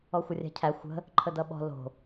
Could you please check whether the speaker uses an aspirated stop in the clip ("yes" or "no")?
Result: yes